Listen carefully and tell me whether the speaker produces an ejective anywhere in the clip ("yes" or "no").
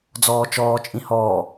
yes